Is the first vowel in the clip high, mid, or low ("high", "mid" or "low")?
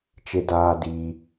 mid